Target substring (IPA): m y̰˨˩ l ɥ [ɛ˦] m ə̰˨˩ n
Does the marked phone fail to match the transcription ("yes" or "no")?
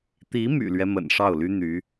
no